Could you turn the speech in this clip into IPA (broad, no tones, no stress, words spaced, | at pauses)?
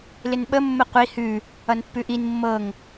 lɪnɓəmːə qʷi hʉ | ʌnpːʉʔin mːɤŋ